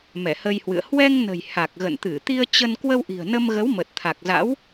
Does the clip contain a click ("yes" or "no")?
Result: no